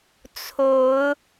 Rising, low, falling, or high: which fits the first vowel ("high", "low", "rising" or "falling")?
rising